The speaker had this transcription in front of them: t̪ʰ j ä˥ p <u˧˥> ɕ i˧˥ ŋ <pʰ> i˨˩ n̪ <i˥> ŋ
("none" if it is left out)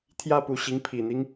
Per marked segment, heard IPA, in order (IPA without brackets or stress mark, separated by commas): u˧˥, pʰ, i˦